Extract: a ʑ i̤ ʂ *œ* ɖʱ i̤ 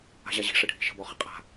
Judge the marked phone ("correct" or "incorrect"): incorrect